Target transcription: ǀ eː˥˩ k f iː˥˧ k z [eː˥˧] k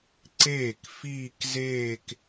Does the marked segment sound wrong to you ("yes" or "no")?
no